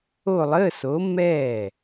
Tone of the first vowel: falling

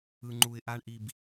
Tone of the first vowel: low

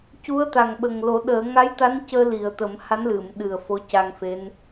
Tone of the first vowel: rising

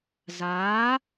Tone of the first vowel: rising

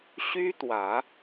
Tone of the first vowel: high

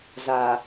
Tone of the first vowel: low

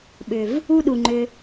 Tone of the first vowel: low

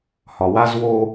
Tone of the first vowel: low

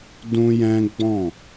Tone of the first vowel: high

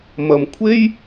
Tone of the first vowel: low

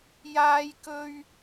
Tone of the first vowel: high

